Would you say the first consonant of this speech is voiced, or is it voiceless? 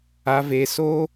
voiced